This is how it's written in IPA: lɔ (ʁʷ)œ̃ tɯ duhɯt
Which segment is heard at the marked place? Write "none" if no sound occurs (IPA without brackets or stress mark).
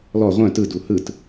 ʁʷ